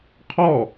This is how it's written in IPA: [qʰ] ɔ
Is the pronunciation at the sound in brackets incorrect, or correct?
correct